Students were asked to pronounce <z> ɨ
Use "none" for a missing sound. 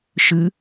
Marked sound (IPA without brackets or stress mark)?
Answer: ʃ